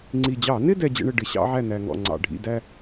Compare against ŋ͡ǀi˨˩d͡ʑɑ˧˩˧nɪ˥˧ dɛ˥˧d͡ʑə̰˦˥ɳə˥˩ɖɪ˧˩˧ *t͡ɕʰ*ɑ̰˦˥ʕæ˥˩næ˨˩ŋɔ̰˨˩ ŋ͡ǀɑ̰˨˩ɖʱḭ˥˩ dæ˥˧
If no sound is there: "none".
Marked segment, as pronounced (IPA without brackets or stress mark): ɕ